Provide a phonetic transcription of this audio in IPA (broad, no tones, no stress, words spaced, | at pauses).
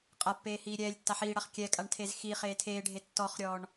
qʼapːeː hiːɾʲɛːlʲtːa ħiːɽaχ kʲɛkʼaɳ tʰezxiχeː tʰeːɖʱe tːɔχɾʲɔːɳ